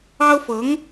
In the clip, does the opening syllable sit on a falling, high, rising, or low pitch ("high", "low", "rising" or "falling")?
high